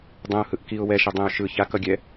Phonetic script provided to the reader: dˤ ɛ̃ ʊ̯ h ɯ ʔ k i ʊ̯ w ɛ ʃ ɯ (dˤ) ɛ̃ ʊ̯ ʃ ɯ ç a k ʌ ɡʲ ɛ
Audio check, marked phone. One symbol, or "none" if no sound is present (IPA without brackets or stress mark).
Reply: dˤ